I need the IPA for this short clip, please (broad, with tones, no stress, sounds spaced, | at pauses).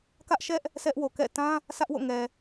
k ä˦ ʔ ʃ ɛ˦ ʔ | s ɛ˦ ʔ w o˨ k ɛ̰˦˨ t ã˦ | s ä˦ ʔ w o̰˦˨ ŋ ɛ˨